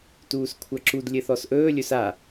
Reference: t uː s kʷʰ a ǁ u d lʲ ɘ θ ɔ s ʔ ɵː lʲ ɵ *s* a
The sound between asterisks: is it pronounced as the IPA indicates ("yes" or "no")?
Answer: yes